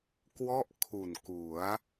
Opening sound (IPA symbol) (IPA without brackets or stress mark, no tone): k